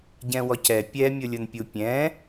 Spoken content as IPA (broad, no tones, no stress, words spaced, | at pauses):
ɟɛ̃wɔcɛ pʲɛmʲʊlʲʊnpʲu pʲɛ̃